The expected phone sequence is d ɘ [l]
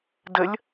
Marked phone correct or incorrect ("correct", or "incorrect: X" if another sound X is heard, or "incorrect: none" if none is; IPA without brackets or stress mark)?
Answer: incorrect: lʲ